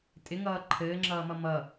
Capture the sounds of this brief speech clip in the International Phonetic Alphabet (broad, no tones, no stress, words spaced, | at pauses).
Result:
tʼɪŋʌː ǃʰɘːŋ͡ǁʌːmʌ mʌ